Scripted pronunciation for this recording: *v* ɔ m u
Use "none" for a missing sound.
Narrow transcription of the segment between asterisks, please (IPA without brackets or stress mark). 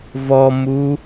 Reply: v